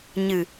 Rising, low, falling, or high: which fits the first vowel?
low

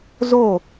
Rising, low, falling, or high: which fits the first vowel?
falling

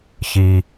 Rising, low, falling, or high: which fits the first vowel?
low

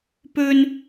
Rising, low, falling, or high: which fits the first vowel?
high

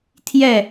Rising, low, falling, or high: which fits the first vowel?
falling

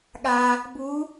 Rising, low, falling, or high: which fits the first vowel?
low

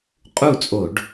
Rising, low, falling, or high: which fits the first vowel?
falling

